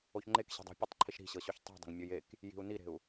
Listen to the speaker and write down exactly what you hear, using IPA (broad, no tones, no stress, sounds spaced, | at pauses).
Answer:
o ç ŋ͡ǃ e k ɕ e̤ dˤ i̤ pʲ ɤ tˤ ǃʰ i ʃ ɾ i̤ ɕ ɤ ɕ o ç tˤ i̤ dˤ e̤ ŋ mʲ ɤ j e k | j i̤ u̯ n i ɾ e̤ u̯